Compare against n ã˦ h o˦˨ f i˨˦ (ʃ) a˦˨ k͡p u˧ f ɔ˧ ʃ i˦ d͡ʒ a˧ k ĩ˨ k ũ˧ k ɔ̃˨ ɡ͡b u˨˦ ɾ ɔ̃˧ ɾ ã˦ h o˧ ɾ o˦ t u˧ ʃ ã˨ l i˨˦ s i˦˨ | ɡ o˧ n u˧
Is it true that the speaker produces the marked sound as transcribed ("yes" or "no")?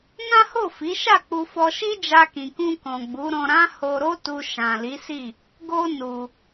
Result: yes